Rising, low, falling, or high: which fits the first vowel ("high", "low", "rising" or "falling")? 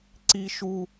high